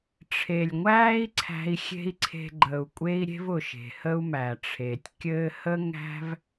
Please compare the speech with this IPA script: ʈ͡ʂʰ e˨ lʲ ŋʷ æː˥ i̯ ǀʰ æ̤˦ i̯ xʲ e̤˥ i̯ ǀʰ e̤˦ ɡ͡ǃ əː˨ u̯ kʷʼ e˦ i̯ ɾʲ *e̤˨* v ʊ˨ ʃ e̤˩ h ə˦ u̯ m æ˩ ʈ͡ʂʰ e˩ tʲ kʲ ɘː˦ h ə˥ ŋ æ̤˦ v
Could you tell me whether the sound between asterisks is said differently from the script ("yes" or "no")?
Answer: yes